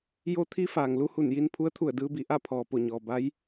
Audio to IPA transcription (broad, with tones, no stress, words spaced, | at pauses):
jo˧˥ t̪ʰi˧˥ faː˩ŋlu˧hu˧˩nji˧n pʰu˧˥ə̯t̪ʰu˧˩ə̯dɯː˧bi˧˩ ʔa˥˨pʰɔː˩ po˧˩ɲɔː˩ ba˧˥j